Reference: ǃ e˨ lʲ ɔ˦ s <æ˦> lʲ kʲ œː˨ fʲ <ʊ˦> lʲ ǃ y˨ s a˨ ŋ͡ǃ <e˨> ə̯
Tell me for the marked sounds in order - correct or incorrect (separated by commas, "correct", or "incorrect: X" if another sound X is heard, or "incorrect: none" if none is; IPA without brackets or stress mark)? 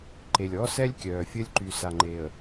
incorrect: ɛ˦, incorrect: ə˦, correct